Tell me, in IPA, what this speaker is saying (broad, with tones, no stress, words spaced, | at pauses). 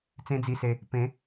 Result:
t͡sẽ˦d͡zi˧se˧ | pẽ˨˦